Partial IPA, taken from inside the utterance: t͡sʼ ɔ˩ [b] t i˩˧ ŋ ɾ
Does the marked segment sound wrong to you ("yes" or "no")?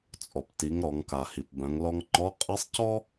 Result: yes